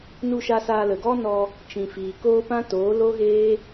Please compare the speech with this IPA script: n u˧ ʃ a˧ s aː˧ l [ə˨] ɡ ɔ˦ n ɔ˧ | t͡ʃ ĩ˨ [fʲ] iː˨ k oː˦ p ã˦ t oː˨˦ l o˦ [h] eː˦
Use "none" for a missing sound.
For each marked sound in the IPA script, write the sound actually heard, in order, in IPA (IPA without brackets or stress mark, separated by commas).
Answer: ə˨, f, ɣ